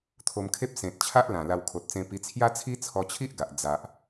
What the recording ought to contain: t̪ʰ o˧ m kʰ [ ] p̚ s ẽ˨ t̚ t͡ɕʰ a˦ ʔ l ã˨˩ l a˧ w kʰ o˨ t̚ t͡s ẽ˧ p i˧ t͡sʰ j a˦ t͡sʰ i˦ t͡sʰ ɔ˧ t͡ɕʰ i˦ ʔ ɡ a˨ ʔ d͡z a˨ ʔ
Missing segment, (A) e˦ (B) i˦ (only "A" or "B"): A